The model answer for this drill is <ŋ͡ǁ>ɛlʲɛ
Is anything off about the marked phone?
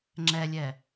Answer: no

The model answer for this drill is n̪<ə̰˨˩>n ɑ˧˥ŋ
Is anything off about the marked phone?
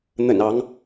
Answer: no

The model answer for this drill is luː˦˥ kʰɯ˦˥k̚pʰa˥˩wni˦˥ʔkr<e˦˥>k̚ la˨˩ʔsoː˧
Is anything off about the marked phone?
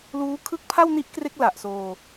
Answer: no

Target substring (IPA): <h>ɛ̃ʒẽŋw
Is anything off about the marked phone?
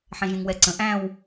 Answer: yes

